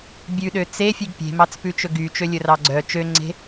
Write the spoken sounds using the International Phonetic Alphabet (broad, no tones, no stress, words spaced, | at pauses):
bʲʉɗø t͡sefʲʉɡ pʲe̤mɑt͡spʉt͡ʃɵ ɡyt͡ʃølʲɵrɑ ɡ͡ǀœ t͡ʃøŋ͡ǀe̤